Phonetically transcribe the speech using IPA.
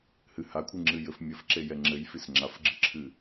h ɨ h a kʷʰ ɨ ŋ͡ǁ ɨ j ɘ f mʲ ɘ f ǁ e j ɛ ŋ͡ǁ ɘ j f i s ŋ͡ǁ a f ɡ͡ǁ ɨ ǁʰ ɨ

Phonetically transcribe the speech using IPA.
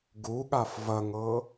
ɡ u ɠ a f v ɐ ŋ ɤ

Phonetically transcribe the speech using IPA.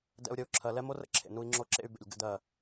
d ɛ̰˦ u̯ ɾʲ ə˦ u̯ ǁʰ ɜ˨ l ɛ˦ m o˦ r ə̰˦ ǁʰ ḛ˨ n u˦ i̯ ŋ͡ǁ o˦ ǁ ḛ˦ y̯ b ḛ˨ lʲ ɡ ə̰˦ d ɜ˦˨

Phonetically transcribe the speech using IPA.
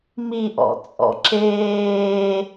m i ʔ ɔ̰ t͡sʼ ɔ̰ ǁ eː

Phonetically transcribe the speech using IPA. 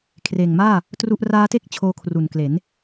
kʰ r eː˨˩ ŋ m aː˥˩ | t r u˥˩ ʔ r aː˦˥ t e˥˩ k̚ t͡ɕʰ oː˧ kʰ r u˨˩ n k l e˩˦ n

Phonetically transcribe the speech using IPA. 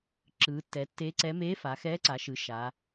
ǁ ɯː˩˧ tː ɛ˩˧ tː e˧˥ ǀ ɛ˧˥ m eː˧˥ f a˩˧ x ɛː˧˥ ǀ a˩˧ ʃ ɯ˩˧ ʃ aː˩˧

